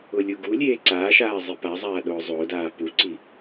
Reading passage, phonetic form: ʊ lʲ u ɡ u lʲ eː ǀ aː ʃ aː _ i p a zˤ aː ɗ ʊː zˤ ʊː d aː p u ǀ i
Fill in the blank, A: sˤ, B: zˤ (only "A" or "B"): B